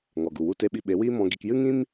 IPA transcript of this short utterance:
ŋ ɔ˨ ɡ u˨ w u˦ t e˦ ɓ i˧ ɓ e˨˦ w iː˦ m ɔ̃˧ ɡ i˧ k j ɨ˦ ŋ ĩ˦ m

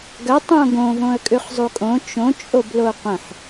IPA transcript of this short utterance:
ɡ ɐ tˤ õ ɡ õ v õ ə̯ kʼ ʉ χ zˤ u kʼ õ t͡ʃ õ t͡ʃʼ o b l o qʷ ə̃ ħ

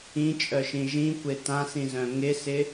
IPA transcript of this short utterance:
ĩ t͡ʃʼ œ ʃ ĩ ʒ ĩ kʷ e t ã s ĩ z œ̃ ŋ ɪ s ɪ

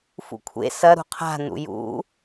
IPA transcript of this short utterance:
f ṵ kʷʰ ḛ s ɐ ɾ ṳ qʰ a̤ n ṵ j ṵ

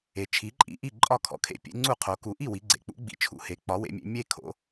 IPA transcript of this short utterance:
e˩˧ t͡ʃʰ i˩˥ ǃʼ ḭ˩˥ ʔ i˥˩ ǃʼ ɒ˥˩ kʰ ɔ̰˩˥ kʰ ḛ˩˥ pʲ ḛ˩˥ ŋ͡ǀ u˥˩ qʰ o˩˧ k u˩˧ ʔ i˥˩ w i˩˥ ɡ͡ǀ ḛ˩˧ k͡p ṵ˩˥ ɡ͡b ḭ˩˧ t͡ʃʰ ṵ˩˥ h e˩˥ k͡p ɒ˩˥ w ḛ˩˧ mʲ ḛ˩˧ mʲ e˥˩ kʰ o̰˩˧

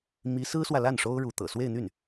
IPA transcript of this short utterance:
m i˧˥ s ɹ̩˥ s w ä˨ l a˥˩ n ʂ o˥ ʊ̯ ɻ u˧˥ t̪ ɤ̰˨˩ s w e˥˧ ɪ̯ n̪ y˥˩ n

